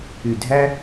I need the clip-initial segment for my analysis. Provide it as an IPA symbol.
y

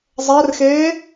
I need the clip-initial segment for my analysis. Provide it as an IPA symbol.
zˤ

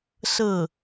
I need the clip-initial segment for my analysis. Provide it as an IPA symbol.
s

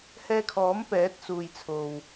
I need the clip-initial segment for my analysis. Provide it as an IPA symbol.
h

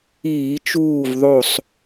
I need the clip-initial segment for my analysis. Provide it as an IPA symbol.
iː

